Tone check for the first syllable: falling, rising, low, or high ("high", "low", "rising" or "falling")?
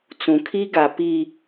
low